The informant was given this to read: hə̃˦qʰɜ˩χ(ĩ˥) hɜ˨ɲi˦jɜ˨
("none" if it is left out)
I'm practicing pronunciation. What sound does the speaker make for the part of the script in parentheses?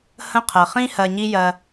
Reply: ĩ˥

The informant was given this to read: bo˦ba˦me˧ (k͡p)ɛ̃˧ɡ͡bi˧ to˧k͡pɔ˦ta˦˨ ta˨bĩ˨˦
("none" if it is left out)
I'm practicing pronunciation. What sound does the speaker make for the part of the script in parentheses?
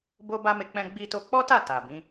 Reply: k͡p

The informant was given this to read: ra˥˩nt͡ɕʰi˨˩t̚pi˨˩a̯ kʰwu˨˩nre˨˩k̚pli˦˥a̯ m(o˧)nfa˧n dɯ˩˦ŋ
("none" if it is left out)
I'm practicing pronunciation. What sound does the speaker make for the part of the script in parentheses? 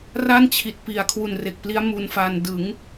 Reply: u˧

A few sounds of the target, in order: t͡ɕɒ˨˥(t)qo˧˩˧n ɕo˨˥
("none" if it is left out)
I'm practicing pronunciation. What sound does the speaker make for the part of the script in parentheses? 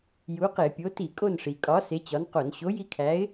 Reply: n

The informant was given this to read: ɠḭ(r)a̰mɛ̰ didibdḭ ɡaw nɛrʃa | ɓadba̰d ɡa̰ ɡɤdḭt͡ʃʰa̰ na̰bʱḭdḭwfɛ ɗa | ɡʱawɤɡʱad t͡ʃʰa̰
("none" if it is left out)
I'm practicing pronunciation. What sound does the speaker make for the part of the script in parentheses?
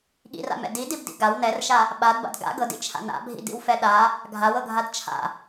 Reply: r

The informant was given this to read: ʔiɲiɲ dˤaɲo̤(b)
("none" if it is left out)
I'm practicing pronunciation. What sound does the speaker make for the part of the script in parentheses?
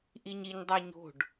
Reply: ɖ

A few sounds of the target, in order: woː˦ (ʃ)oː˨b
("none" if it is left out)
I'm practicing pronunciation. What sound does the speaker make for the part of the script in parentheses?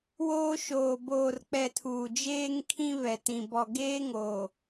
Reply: ʃ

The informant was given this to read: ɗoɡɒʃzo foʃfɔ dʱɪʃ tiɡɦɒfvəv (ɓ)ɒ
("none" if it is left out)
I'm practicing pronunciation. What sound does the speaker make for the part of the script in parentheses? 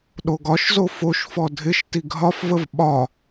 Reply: ɓ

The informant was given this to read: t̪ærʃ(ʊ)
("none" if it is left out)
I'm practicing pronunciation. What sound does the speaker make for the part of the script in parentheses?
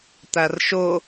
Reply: ʊ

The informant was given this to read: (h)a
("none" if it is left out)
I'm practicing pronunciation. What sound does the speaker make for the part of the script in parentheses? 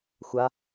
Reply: xʷ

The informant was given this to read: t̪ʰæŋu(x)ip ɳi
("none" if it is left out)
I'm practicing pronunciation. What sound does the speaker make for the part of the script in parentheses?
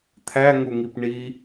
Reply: ŋ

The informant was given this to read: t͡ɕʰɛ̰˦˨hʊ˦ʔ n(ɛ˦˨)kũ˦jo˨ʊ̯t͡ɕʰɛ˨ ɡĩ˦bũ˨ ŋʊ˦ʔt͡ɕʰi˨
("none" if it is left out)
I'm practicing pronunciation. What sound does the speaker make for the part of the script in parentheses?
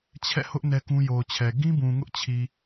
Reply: ɛ˦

